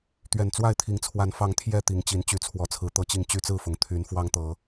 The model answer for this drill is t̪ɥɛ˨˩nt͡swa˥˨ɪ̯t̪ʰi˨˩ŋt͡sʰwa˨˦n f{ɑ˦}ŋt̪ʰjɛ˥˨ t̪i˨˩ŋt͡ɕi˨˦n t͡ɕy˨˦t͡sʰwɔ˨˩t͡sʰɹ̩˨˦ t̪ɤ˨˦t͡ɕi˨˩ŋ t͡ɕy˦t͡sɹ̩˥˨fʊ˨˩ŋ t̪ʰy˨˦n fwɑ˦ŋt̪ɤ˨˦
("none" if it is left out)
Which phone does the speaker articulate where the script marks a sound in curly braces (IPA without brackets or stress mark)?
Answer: ɑ˨˦